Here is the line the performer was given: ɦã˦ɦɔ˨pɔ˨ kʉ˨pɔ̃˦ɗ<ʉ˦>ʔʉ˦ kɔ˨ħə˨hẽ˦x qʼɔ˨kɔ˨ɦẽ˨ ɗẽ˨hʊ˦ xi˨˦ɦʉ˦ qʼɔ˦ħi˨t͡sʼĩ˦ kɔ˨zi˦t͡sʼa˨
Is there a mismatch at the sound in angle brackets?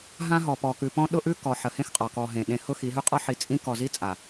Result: yes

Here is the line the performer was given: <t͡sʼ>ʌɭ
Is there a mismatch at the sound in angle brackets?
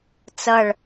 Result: yes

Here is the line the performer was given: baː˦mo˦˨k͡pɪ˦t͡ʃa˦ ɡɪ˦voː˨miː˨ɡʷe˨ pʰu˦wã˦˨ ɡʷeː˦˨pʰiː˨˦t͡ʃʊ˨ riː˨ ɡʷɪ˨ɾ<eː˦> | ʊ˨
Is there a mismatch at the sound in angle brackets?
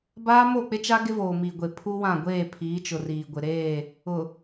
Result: yes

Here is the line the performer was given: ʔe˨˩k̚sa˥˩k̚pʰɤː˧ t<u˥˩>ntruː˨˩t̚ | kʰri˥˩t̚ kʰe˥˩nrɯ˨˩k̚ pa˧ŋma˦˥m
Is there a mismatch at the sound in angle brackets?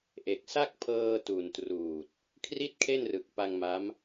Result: yes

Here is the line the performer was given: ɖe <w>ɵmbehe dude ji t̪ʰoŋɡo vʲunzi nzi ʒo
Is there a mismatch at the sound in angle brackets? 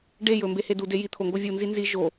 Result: yes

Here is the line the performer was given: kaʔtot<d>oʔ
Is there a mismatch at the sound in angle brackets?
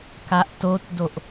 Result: no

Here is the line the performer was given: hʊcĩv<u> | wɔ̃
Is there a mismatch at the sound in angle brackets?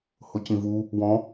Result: no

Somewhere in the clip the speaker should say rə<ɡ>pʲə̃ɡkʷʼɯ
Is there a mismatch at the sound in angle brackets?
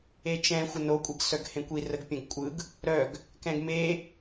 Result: no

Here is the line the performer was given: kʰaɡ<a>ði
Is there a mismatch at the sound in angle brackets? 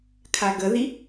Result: yes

